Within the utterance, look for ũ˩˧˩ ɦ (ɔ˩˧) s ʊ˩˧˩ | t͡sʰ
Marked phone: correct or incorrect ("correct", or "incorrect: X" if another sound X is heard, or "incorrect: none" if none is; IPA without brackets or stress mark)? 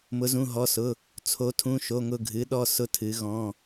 incorrect: ɔ˩˧˩